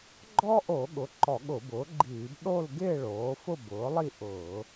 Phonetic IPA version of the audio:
ɡ͡ǃ ɔ˥ ʔ o˧˩˧ ɠ ʊ˩˥ ǃ ɔ˧˩˧ ɠ ʊ˧˩˧ b ʊː˩˥ ɡ͡ǃ iː˧˩˧ b ɗ o˥˧ l ɡ ɪː˥˧ ɭ oː˩˥ f ʊ˥˧ b ʊː˩˥ lˠ i˥˧ ʔ ʊː˧˩˧

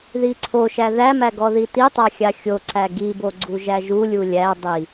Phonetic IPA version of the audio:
ð i ǀʰ o ʃ æ ð æ m æ ɡ ɔ ð i t i tˤ a xʲ a xʲ o ǀ æ ɡ i b o ɡ͡ǀ u ʒ æ ʒ u lʲ u lʲ æ dˤ i

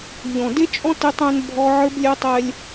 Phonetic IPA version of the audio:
ʎ ɔ̃˨ d e˦ t͡ʃʼ ɔ̃˦ t e˦ tˤ ɛ̃˦ n bʱ ɔ˦ ʕ ə˞˦ b lʲ ɛ˦ tˤ ɛ˦ lʲ

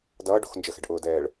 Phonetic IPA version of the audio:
d ʌː ɖ o̤ x n d͡ʒ ə x ɛ̤ ɖ ʔ ʊː d ɛː ɭ

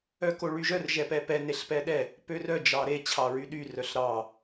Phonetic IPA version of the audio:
œ k o ɭ y ʒ œ r ʒ ɛ p ɛ p ɛ n e ɬ p ɛ ɗ ɛ | p ø r œ d͡ʒ ɑ ɾ e t͡ɕʰ ɑ ɹ y ɗ y r œ ɬ ɾ ɑ

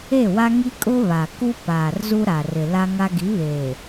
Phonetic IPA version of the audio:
e˦˨ w a˦ ŋ i˦ kʼ ʊ˦ β a˨ k u˦ p aː˨ r z u˦ ɾ a˨ r ɪ˨ l a˦ ŋ a˦ ɡ i˨˦ β eː˨

